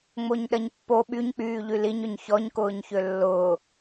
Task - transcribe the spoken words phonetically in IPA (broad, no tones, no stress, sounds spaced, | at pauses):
ŋ͡m o ɲ ɗ ɐ ɲ pː o ɓ y ɲ k͡p yː ʎ y l i ɲ ʏ ɲ ç ɔ ɲ k ʊː ɲ ç ø lː ʊː